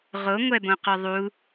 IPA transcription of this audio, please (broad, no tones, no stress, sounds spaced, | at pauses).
ʁ o ŋʷ ɛ b õ q ʊ ðˤ u